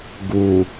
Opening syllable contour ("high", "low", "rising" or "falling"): low